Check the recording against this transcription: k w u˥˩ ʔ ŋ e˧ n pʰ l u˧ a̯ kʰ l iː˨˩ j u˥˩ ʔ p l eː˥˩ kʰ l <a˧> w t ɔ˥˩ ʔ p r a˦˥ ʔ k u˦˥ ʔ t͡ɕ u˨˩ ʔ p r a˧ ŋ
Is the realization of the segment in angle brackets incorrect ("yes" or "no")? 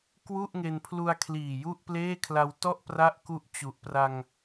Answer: no